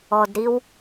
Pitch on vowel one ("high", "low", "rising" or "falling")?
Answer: low